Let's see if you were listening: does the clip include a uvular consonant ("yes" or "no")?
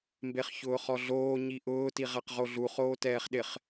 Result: yes